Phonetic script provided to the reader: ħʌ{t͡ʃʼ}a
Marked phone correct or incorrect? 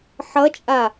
correct